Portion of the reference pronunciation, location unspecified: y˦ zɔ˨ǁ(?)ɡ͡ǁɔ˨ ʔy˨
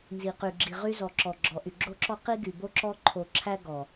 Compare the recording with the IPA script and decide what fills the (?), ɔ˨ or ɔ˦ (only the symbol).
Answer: ɔ˨